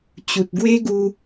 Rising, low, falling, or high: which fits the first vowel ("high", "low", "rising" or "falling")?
low